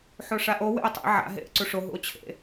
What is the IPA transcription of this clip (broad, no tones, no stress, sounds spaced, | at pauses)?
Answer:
ħ o ʂ a ʔ o w ḛ o̯ tˤ ḛ ʕ a̰ ɦ ḛ ʔ ǀ u ʂ o ɦ ṵ o̯ t͡ɕʰ ḛ